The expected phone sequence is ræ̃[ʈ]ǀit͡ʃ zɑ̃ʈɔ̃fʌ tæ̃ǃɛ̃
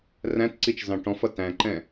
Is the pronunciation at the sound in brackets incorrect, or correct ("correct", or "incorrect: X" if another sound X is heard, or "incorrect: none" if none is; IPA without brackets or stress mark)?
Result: incorrect: t